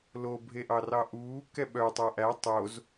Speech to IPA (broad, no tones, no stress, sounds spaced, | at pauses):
l o bʱ e ʔ ɑ r ɑ ʔ uː k ɛ ɓ œ tˤ æ ʔ æ tˤ o z